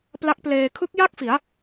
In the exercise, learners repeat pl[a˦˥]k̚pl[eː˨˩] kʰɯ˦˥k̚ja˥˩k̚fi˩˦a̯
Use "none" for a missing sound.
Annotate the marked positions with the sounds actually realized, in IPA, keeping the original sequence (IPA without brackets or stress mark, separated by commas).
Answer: a˦˥, eː˧